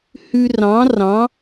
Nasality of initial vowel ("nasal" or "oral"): oral